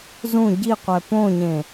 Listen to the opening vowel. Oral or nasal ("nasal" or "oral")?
nasal